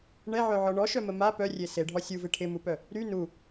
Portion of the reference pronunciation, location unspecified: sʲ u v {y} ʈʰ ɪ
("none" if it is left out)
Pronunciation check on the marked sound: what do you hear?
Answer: ɪ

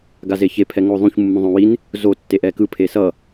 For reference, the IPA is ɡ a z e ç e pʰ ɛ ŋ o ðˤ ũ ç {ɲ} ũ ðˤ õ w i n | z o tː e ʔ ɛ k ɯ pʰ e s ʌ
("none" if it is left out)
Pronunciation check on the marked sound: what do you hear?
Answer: mː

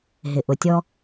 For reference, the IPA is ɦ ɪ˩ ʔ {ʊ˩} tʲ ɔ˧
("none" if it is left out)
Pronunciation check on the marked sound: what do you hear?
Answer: ʊ˩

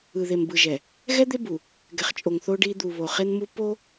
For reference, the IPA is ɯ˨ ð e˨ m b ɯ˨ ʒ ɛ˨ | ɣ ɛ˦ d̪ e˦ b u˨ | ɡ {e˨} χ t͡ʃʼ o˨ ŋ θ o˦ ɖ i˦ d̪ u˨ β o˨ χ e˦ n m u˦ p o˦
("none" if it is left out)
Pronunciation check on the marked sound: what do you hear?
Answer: ɛ˨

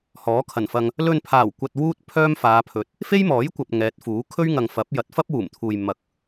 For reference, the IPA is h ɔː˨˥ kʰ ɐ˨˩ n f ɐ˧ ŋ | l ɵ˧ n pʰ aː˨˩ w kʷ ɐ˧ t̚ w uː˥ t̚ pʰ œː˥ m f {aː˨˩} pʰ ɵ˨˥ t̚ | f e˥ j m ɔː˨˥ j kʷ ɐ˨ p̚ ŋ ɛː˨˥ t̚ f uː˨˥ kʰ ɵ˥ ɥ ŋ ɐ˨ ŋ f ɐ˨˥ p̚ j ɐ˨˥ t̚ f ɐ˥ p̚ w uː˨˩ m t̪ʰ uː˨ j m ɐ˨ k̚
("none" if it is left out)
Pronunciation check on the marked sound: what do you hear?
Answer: aː˨˧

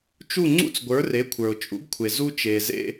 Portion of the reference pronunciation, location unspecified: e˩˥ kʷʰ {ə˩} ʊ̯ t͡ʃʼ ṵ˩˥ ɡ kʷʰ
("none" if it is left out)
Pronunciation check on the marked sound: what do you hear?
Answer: ə˞˩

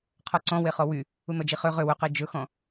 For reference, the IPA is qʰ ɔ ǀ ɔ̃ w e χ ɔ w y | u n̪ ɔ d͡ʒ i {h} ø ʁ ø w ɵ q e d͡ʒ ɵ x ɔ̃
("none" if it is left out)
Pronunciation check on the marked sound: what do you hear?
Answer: χ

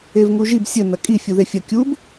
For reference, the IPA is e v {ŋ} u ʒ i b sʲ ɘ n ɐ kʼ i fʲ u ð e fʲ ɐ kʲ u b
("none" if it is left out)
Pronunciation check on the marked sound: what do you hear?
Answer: ŋ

